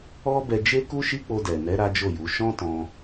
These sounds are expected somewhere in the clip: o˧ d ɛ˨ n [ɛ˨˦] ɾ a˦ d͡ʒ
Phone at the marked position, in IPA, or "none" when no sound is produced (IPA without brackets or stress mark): ɛ˨˦